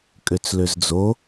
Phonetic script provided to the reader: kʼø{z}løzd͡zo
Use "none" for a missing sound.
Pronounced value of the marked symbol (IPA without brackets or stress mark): t͡s